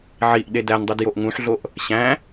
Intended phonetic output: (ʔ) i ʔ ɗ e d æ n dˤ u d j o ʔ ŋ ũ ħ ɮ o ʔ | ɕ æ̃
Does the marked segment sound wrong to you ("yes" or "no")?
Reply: yes